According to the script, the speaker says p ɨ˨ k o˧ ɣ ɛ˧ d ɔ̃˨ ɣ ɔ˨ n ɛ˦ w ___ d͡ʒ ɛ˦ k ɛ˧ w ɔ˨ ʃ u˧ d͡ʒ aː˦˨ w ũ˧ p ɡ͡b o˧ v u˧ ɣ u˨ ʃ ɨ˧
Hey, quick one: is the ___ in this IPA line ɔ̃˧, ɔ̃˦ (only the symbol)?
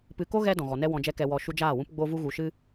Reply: ɔ̃˧